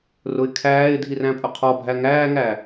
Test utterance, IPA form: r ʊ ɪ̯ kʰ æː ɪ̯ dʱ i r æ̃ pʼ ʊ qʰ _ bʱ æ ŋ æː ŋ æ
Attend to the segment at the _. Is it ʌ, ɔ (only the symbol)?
ɔ